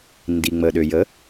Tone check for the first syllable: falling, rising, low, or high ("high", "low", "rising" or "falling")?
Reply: low